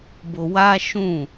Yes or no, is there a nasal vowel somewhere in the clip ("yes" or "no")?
yes